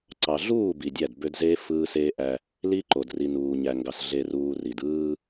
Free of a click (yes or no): no